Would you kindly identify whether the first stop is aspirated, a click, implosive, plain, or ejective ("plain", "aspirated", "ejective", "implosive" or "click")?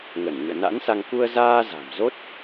plain